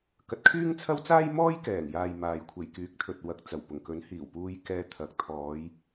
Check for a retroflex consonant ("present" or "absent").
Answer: absent